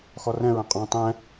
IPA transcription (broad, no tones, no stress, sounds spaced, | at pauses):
x ɔ r ɛ̃ ɹ ɛ̃ qʼ ɔ̃ tˤ ɛ̃